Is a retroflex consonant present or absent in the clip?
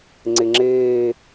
absent